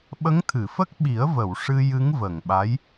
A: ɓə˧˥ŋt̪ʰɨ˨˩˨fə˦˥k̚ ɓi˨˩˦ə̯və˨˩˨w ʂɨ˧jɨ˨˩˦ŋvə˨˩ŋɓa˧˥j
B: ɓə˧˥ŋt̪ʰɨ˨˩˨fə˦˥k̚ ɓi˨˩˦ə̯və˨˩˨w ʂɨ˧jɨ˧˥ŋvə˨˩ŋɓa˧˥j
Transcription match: B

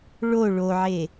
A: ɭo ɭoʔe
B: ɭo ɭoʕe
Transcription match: B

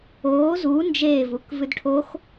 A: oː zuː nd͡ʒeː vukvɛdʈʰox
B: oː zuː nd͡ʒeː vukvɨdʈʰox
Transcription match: B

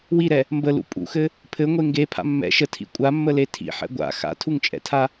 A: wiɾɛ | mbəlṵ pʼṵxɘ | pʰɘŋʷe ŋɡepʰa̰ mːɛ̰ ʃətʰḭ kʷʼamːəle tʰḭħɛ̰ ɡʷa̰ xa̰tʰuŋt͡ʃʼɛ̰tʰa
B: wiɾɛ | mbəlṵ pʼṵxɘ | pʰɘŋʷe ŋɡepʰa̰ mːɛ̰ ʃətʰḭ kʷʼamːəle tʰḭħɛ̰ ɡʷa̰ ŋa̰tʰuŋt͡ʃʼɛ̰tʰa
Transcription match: A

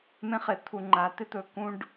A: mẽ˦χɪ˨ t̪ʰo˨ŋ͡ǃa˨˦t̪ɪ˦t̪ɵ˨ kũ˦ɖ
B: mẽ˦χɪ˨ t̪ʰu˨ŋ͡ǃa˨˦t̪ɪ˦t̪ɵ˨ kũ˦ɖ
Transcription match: B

